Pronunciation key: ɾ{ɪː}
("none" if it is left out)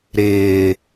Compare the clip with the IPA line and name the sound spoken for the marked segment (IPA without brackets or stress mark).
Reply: ɪː